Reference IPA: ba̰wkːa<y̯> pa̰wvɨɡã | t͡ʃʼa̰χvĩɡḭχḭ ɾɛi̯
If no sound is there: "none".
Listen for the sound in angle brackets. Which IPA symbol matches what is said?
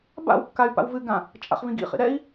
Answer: y̯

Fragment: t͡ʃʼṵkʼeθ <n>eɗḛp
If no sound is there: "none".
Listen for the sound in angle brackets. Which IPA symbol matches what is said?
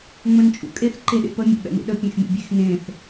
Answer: ǃ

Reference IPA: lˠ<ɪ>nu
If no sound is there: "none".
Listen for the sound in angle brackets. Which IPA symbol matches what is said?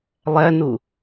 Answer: ɛ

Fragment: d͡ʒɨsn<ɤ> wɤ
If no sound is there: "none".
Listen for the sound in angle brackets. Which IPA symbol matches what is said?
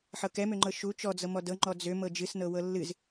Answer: ɤ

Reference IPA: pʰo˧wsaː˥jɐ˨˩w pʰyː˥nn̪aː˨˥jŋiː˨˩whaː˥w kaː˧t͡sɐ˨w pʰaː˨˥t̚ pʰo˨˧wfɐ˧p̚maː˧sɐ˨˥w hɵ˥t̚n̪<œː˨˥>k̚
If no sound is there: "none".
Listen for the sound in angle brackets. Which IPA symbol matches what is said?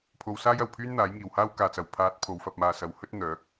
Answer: œː˨˥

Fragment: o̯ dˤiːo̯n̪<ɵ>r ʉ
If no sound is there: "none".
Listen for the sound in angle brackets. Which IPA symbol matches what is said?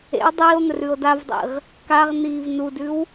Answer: ɵ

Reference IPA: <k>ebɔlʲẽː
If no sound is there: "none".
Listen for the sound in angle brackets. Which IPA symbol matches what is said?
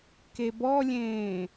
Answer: k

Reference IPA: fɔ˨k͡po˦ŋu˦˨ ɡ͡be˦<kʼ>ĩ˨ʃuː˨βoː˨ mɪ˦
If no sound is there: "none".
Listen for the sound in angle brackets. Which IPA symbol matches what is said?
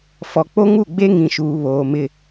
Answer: ŋ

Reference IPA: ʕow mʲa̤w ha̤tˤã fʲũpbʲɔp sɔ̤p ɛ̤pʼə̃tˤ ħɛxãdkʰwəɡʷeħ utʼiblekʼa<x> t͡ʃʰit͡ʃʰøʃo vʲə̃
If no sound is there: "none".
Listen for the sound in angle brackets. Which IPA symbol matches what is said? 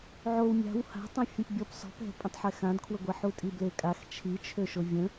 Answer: x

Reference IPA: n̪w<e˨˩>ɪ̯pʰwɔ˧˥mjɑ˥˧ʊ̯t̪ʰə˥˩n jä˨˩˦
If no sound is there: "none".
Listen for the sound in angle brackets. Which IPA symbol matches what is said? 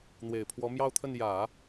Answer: e˨˩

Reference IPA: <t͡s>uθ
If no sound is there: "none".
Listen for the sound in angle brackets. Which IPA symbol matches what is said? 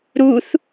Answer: ɾ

